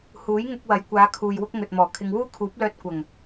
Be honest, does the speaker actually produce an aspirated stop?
yes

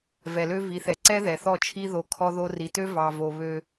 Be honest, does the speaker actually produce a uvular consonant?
no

